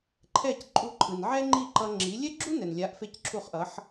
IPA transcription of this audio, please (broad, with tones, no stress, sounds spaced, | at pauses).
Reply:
ǃʰ ɛ˥˩ c ǃʼ u˧ ǃʰ ɯ˩ n ʕ ɛ˥ ŋ͡ǃ i˥˩ ǃ ʌ˧ ŋ͡ǁ i˩˥ lʲ ɛ˥ ɡ͡ǁ u˥ n ɛ˩ n lʲ a˩˥ ʔ f e˥˩ c ǁʰ u˥˩ χ ʔ ʌ˩˥ ħ